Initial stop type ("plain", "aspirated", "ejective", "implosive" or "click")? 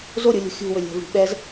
implosive